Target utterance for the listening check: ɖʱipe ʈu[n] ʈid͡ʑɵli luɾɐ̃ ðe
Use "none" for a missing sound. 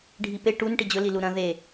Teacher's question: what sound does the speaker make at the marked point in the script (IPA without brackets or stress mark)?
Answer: n